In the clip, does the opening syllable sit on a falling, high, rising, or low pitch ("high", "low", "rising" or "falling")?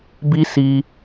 high